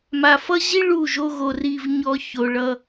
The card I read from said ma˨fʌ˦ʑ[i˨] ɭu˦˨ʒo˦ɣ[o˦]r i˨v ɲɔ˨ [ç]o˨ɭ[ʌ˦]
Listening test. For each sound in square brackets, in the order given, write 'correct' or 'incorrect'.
incorrect, incorrect, correct, correct

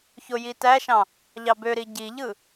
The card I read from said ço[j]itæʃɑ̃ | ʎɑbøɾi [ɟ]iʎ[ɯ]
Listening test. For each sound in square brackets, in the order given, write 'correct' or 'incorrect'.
correct, correct, correct

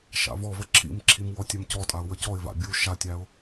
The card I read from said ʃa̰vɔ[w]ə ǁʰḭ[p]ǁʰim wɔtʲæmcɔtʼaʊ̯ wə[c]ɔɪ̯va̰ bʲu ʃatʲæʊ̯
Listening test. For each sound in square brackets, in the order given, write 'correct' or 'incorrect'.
incorrect, incorrect, correct

